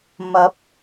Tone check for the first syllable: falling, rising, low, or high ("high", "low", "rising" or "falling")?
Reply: rising